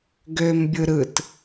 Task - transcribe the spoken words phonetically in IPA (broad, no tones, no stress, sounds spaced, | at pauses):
ɡ ø m bʲ ɯ ɾ ɯ t